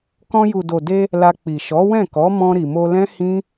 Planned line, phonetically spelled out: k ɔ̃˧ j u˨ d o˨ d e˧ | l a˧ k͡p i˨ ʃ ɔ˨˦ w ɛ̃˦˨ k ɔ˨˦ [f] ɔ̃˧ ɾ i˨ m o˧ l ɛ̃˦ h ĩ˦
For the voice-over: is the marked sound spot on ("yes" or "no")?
no